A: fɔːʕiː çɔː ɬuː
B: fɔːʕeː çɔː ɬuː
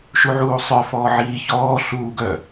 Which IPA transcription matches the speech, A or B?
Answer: A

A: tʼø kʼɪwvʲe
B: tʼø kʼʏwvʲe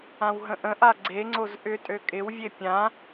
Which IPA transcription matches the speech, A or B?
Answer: A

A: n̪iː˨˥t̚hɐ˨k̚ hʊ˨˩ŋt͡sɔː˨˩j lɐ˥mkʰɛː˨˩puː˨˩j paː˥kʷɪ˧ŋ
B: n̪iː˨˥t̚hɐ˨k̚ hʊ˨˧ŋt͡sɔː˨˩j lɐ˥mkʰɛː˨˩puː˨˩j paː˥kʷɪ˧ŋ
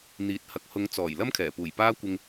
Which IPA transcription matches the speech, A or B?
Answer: B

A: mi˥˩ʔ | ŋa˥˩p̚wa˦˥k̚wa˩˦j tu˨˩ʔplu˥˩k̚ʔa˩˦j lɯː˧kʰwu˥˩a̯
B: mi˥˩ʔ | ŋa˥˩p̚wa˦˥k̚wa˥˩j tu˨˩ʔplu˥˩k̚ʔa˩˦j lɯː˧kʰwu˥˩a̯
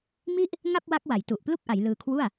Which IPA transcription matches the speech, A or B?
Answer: A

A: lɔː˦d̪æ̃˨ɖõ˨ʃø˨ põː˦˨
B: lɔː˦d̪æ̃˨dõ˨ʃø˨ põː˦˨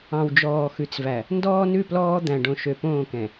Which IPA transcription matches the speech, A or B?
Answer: A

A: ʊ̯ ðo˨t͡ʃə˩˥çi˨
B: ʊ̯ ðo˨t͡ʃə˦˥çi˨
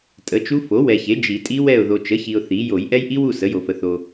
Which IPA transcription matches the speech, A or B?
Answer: A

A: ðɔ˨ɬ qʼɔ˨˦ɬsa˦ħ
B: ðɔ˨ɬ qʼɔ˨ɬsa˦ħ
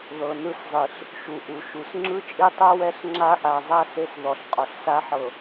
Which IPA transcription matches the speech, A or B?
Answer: B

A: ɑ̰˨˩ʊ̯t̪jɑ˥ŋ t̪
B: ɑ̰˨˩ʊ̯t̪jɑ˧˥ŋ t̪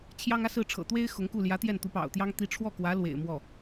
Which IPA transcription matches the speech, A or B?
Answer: A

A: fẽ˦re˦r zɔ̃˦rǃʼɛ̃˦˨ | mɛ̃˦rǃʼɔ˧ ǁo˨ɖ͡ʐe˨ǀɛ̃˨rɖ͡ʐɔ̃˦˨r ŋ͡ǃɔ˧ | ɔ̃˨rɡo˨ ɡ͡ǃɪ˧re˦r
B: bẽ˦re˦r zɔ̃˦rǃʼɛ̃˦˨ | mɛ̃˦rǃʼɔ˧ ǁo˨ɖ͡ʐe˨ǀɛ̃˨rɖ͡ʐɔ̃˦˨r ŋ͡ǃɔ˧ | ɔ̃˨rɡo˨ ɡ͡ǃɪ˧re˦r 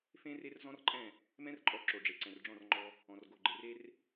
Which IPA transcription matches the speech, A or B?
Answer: A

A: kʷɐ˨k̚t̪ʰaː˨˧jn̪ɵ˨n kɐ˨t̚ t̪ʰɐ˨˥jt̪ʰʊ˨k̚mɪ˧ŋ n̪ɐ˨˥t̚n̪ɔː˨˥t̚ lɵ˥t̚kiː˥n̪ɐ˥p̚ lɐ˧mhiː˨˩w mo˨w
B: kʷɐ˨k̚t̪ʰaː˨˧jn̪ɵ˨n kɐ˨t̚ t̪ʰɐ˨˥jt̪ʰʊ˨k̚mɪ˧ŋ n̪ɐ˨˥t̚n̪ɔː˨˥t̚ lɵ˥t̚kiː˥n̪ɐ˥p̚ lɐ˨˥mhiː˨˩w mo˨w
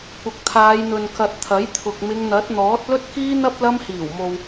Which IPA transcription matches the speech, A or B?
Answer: A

